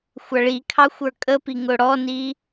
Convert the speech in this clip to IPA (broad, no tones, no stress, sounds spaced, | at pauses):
xʷ ʌ ɭ i kʰ ɑ xʷ ə˞ kʼ ə p i ŋ ʊ ɽ ɔ n i